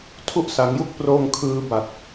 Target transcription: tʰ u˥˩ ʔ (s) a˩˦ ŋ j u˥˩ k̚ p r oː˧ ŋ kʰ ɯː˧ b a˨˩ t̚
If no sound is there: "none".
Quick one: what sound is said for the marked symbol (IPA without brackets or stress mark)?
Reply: s